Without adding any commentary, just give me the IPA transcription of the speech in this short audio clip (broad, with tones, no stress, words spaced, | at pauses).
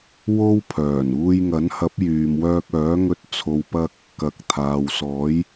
wo˥wpʰœː˨˩n uː˧jŋɐ˨˥nhɐ˨˥p̚ jyː˨mwœː˧k̚œː˨˥ŋɵ˧t̚ t͡sʰo˨wpɐ˧k̚ | kɐ˨˥k̚t̪ʰaː˨wsɔː˨˥j